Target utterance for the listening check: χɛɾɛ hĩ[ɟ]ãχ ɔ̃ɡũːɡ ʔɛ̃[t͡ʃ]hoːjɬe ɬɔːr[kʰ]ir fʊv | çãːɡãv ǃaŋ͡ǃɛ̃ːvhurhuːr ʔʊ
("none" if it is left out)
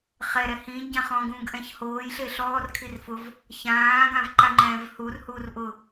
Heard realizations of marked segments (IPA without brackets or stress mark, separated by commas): ɟ, ç, kʰ